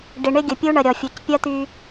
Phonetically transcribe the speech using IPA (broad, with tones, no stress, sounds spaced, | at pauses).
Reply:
ɖ ɪ˨ ɳ ɪ˦ ɡʲ ə˨ pʲ u˦ ɳ ə˨ ɾʲ ɔ˨ fʲ u˨ c pʲ ɐ˦ t̪ y˦